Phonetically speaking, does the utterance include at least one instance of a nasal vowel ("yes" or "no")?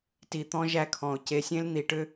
yes